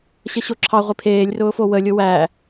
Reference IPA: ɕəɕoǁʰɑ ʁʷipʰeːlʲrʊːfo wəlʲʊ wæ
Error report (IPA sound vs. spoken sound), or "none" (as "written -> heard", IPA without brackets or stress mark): none